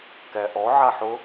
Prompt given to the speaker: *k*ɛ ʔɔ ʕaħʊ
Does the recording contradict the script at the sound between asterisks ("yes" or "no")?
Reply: no